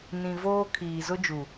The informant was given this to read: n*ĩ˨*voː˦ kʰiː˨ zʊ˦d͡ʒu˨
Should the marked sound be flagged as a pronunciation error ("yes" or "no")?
no